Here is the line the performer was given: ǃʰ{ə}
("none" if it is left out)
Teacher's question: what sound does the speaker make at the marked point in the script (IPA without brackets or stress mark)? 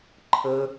ə